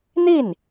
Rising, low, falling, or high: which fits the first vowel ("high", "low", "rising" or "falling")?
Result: falling